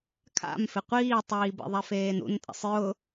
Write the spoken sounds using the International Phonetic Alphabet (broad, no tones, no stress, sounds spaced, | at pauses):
kʰ a̰ m f ɪ qʷ iː tˤ iː b ḛ ðˤ ɛ f eː n ṵ n tʼ ḛ sˤ j ʊ